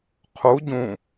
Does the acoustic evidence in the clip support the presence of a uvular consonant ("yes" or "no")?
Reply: yes